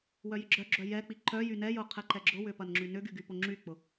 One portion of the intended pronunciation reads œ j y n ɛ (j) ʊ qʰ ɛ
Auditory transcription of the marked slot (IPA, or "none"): j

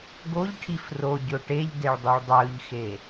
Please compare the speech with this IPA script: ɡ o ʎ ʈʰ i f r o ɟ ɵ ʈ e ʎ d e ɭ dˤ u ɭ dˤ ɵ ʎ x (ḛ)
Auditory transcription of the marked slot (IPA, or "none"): e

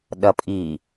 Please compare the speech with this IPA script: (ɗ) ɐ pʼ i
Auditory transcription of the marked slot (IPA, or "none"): ɗ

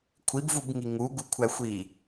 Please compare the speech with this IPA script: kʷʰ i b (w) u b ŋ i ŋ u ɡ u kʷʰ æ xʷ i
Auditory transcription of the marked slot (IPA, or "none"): v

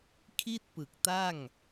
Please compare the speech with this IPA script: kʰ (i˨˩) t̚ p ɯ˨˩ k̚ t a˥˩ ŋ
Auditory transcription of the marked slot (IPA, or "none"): i˥˩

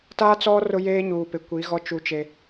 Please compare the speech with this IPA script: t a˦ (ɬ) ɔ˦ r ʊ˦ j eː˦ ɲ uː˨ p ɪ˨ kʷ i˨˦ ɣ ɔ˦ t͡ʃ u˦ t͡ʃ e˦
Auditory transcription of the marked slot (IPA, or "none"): t͡s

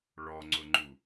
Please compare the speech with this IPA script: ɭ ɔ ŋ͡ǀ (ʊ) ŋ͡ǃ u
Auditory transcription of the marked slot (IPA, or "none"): ʊ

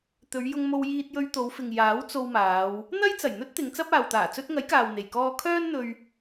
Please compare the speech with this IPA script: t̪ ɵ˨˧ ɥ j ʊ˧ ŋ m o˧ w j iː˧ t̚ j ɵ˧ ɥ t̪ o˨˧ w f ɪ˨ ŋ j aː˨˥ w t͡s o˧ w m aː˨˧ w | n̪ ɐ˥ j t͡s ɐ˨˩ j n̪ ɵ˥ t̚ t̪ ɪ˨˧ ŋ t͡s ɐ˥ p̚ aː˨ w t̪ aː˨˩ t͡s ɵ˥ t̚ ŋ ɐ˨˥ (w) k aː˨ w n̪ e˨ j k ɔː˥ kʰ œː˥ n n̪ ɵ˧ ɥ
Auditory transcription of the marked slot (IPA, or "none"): j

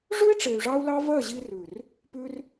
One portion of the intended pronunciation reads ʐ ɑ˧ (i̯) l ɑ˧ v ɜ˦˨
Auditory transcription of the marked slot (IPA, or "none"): u̯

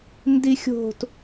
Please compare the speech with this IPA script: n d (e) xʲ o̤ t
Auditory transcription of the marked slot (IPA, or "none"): i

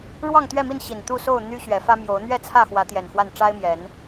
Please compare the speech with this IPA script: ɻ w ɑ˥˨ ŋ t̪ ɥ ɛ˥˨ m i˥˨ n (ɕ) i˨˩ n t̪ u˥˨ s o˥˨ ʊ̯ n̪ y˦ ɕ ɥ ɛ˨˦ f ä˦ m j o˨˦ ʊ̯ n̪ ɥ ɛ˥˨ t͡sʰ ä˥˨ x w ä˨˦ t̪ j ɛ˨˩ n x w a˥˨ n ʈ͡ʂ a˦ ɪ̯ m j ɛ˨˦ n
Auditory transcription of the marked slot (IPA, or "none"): ɕ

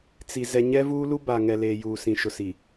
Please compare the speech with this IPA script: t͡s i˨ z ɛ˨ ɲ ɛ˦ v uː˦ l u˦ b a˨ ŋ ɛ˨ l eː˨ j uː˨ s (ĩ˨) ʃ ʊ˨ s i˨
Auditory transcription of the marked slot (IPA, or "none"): ĩ˨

